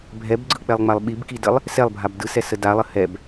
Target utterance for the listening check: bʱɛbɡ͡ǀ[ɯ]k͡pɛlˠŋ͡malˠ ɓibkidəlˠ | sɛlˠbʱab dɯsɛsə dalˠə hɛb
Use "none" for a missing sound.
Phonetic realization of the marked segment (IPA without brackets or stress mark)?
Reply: ɯ